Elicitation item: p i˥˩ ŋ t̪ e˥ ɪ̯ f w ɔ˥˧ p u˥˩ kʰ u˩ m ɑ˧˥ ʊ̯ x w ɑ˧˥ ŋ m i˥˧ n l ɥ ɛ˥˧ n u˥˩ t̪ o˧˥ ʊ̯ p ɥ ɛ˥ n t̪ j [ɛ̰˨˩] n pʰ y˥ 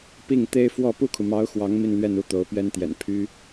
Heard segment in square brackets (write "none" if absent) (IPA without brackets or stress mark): ɛ̰˨˩